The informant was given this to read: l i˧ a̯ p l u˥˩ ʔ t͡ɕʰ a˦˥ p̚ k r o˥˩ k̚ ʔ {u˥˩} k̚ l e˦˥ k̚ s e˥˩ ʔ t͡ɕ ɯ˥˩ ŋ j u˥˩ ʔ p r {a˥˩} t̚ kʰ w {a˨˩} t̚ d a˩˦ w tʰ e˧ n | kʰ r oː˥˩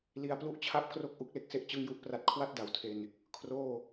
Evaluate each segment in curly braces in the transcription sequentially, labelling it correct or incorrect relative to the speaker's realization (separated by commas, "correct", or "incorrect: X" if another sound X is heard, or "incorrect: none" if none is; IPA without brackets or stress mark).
incorrect: u˦˥, correct, incorrect: a˥˩